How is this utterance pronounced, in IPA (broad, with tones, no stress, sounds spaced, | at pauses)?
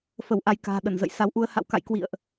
f ə˧˩ w ʔ a˧ j k a̤ː˨˩ ɗ ə˧˩ n z ə̰˧˨ j s a˨˦ w ʔ u˧ ə̯ h a̰˧˨ w k a̰˧˨ j k w ḭ˧˨ ə̯ ʔ